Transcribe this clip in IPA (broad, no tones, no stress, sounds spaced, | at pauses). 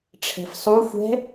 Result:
ʈ͡ʂʰ ɛ̤ f sˤ u xʷ ɛ̤